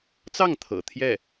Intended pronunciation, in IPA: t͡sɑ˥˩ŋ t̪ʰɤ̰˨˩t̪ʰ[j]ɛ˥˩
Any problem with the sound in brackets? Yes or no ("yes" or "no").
no